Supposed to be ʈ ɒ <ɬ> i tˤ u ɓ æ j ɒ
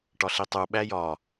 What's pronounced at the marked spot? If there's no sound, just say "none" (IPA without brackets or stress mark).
ɬ